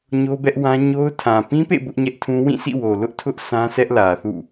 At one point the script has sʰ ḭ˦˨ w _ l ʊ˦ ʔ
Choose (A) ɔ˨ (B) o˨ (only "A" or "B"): B